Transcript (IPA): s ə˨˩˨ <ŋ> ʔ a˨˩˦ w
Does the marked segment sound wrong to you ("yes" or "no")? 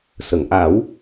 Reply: no